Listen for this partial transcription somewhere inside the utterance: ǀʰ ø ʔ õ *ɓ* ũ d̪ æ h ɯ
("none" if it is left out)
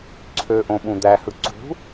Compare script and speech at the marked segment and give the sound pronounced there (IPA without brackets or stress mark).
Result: ɓ